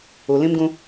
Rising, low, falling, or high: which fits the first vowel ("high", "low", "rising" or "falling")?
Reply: low